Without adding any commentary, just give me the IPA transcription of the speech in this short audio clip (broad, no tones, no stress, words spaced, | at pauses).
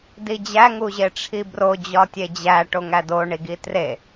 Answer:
did͡ʑæ ŋuʑeʈ͡ʂʰibro d͡ʑɒtʲed͡ʑæ ʈoŋædo ɳiɡitre